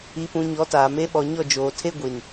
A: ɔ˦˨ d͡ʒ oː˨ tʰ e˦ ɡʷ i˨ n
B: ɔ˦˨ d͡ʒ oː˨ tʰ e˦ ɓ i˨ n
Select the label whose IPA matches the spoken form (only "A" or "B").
A